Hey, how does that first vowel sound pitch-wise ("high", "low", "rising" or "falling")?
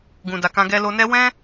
low